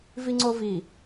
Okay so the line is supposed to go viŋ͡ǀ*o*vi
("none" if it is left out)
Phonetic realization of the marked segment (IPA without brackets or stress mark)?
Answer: o